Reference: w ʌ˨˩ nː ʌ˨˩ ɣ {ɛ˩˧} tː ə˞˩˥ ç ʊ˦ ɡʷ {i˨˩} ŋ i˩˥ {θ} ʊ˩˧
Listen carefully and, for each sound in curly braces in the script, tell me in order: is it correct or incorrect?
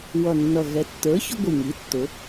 correct, correct, incorrect

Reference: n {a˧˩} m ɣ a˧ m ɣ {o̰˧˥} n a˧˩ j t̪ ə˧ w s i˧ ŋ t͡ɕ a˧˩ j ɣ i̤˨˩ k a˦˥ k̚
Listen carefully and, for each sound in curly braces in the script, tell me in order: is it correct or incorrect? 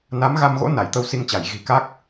incorrect, correct

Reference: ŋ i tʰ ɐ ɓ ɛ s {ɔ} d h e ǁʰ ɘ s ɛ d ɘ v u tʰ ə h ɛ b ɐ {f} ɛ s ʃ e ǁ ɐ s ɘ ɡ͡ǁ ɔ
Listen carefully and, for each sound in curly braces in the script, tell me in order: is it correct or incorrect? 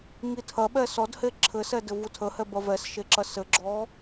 correct, incorrect

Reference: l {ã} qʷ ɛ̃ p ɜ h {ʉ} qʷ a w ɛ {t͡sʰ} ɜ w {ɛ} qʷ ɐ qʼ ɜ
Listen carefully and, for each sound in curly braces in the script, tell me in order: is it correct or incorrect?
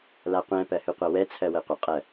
incorrect, correct, correct, correct

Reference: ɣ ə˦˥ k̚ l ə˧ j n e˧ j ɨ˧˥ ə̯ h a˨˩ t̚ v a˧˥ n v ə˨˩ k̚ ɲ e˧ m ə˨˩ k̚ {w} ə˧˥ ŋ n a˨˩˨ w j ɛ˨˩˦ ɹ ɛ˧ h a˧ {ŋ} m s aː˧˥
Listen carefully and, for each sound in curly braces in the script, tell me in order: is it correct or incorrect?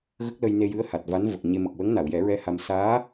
correct, incorrect

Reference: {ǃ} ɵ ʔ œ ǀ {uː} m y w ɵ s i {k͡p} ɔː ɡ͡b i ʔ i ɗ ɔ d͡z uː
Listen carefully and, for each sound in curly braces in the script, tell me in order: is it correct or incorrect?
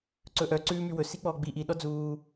incorrect, incorrect, correct

